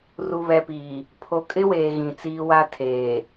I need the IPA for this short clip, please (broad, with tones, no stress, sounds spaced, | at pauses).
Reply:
r u˨ β ɛ˨ p iː˨ | pʰ o˨ kʼ ɪ˦ w eː˨ ɣ ĩ˨ t͡s iː˦ w a˦ tʰ eː˨